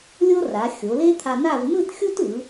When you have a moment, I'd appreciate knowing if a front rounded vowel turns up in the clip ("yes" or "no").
no